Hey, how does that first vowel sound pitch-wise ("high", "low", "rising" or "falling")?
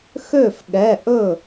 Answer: falling